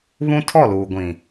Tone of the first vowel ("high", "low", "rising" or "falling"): high